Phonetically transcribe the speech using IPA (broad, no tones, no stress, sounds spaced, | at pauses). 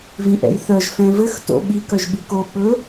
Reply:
v ĩ ʔ ɛ̰ j θ œ ʒ f ɛ̃ v ɘ x t o̰ ɓ i k œ ʒ ɓ i k o ɓ ɵ